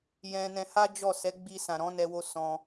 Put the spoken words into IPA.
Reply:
j ɛ̃˧ n ɛ̃˧ h a˦ d͡ʒ ɔ˦˨ s ɛ˨˦ ɡ͡b i˧ s ã˨ ɾ ɔ̃˨˦ n ɛ˧ w o˧ s ɔ̃˧

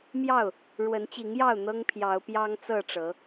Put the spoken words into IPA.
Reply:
m j ɑ˥˨ ʊ̯ | ɻ w ə˨˦ n t͡ɕ i˨˦ ŋ j ɑ˥˨ ʊ̯ n̪ ɤ˦ ŋ pʰ j ɑ˨˦ ʊ̯ p j ɑ˦ ŋ t͡s ɤ˥˨ ʈ͡ʂ ɤ˨˦

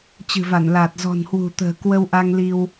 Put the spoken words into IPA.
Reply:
t͡ɕ ɨ̤˨˩ v a˧˩ n l aː˨˩ t̚ z ɔ̤˨˩ n h w ṳ˨˩ t̪ ə̤ː˨˩ k w ə˧ w ʔ a˧ ŋ l i˧ w

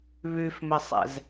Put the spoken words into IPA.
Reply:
β ʉ f m ɘ sˤ ɛ̰ z

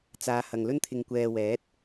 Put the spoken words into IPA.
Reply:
t͡s aː˨˧ h ɐ˨ ŋ l ɵ˧ n t̪ʰ ɪ˨ ŋ kʷ ɛː˨ w ɛː˨˥ t̚

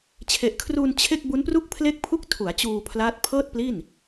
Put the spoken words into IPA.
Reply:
t͡ɕʰ e˨˩ ʔ kʰ r uː˧ n t͡ɕʰ e˥˩ k̚ b u˦˥ n p r u˥˩ k̚ pʰ l e˥˩ k̚ pʰ u˥˩ k̚ tʰ u˩˦ a̯ t͡ɕ uː˧ pʰ l aː˦˥ t̚ pʰ ɤː˥˩ t̚ p l i˥˩ n

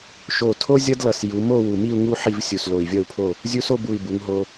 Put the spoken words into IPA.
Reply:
ʃ o˧˩ tʰ o˥ zʲ ʌ˥ d l ʌ˧˩ s j u˩˧ m o˥˧ w u˧˩ m i˥˧ u̯ ŋ u˥ ħ i˥˧ v sʲ u˧˩ s l o˧˩ i̯ vʲ ʌ˥˧ u̯ pʰ o˥˧ | zʲ u˧ s o˥˧ b u˧˩ i̯ b u˩˧ ŋ ɦ o˧

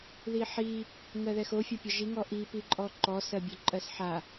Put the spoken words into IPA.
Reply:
ð i ħ i | ŋ ɜ ð ɛ x o fʲ ɒ pʲ ɒ ʒ i ŋ ɔ ʔ i p i ǃʼ ɔ ǃ ɔ s ɜ bʲ o ǃʼ ɜ s ħ a

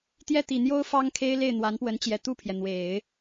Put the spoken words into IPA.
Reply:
t̪ j ɛ˥˩ t̪ i˨˩ n̪ j o˥ ʊ̯ f ɑ˥ ŋ kʰ e˥ ɪ̯ l e˥˩ ɪ̯ n̪ w a˧˥ n p w ə˧˥ n t͡ɕ j ɛ˨˩ t̪ u˥˩ pʰ j ɛ˩ n̪ w e˨˩˦ ɪ̯

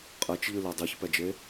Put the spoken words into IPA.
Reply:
qʼ ɛ t͡ʃ ʎ ɨ l e dˤ i ç p ɛ d͡ʒ e

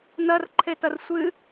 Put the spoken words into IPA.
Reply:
n ɐ r ǃʰ e t ɐ r sʷ ɨ

